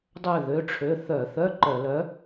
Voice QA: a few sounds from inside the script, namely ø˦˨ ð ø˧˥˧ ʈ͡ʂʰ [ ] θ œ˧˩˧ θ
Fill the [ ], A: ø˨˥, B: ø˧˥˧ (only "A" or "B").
B